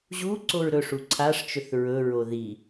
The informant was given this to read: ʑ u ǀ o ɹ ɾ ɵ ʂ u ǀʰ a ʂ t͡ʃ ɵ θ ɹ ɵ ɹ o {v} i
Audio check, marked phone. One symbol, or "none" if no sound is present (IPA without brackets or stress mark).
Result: ð